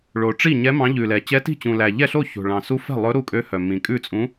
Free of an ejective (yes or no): no